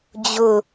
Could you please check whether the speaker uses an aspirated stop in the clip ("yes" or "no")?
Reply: no